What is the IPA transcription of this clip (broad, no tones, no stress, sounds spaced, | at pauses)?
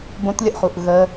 b õ t lʲ ə ʔ χ u ʔ ɣ ə